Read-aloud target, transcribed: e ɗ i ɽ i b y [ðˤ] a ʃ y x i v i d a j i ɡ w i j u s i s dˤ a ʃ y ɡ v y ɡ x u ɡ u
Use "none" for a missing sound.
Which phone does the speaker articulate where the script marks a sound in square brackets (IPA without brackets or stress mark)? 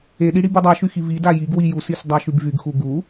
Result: dˤ